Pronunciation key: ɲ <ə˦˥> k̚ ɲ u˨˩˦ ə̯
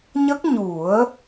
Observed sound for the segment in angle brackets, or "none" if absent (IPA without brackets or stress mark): ə˦˥